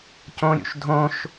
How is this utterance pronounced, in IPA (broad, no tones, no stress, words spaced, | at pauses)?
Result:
cõɾʲṵʃ dʱõʃ